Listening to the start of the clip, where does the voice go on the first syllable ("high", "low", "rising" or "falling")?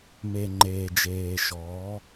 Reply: low